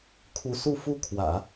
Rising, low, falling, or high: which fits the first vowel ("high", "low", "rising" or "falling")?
rising